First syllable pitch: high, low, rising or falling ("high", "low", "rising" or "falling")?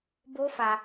high